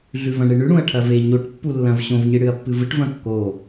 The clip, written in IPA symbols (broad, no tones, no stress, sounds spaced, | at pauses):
ɮ ʉ v ɐ̃ ɳ ɨ ɳ ʉ ɽ ũ ɐ̯ ʈʰ ɐ v e ɲ o ʈ pː u lː ɐ̃ v ɕ õ v ɲ ɨ ɽ ɨ ɐ̯ pː ɨ v ɨ ʈ v ɐ̃ kː o